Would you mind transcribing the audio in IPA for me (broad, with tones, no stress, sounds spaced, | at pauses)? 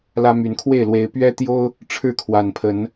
l ä˦ m y˨˦ n kʰ w e˥˨ ɪ̯ l w e˨˦ ɪ̯ p ɥ ɛ˦ t̪ j o˦ ʊ̯ | ʈ͡ʂʰ ɻ̩˥˨ kʰ w a˨˩ n pʰ ə˨˦ n